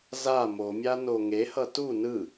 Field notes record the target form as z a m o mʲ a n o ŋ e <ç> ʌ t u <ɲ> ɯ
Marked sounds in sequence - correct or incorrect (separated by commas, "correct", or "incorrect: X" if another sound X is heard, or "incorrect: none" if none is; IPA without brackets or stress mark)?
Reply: incorrect: h, incorrect: n